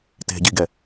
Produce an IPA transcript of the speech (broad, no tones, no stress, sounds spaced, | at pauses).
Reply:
t e̤ ɟ i ɡ ɛ